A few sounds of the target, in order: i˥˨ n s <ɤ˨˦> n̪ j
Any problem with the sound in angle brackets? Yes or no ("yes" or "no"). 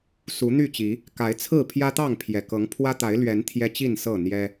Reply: yes